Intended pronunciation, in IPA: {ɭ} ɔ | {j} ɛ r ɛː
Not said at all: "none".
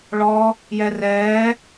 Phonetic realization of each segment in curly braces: ɭ, j

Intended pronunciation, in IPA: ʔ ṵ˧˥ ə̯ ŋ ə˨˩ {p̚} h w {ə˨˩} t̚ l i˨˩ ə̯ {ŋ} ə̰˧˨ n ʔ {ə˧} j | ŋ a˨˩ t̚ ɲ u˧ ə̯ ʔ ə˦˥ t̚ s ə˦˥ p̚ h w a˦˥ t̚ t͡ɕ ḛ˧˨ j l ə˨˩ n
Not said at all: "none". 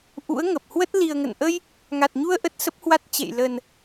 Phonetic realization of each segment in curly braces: p̚, ə˦˥, ŋ, ə˧

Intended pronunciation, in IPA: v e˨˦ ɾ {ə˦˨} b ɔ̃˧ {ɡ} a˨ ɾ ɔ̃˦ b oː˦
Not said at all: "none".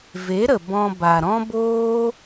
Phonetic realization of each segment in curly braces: ə˨, b

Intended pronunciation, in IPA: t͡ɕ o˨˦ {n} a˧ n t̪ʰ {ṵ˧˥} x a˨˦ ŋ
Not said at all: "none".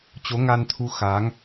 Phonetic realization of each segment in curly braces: ŋ, u˧

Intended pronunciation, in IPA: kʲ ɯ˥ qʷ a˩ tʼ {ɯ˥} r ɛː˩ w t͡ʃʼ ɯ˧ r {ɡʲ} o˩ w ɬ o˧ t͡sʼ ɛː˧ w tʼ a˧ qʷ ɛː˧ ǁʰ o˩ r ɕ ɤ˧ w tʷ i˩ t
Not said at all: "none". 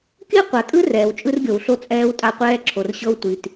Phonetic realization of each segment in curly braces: ɯ˥, ɡʲ

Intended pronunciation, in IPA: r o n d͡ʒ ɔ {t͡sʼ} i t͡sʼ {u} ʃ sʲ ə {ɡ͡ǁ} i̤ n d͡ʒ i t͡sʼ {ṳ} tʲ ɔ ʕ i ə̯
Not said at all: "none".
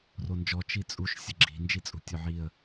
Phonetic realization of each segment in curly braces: t͡ʃ, u, ɡ͡ǁ, ṳ

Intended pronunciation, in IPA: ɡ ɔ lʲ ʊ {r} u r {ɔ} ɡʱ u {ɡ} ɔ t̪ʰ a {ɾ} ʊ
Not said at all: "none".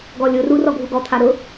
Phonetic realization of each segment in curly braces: r, ɔ, ɡ, ɾ

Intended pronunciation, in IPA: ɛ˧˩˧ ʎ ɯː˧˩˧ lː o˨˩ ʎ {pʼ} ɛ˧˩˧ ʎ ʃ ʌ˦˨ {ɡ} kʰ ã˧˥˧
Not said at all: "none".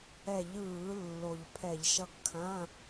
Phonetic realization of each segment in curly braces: pʰ, ɡ

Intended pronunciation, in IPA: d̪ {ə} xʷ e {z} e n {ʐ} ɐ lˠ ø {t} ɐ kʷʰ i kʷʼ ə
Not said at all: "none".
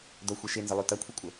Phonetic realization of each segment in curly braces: ɐ, ʃ, z, t

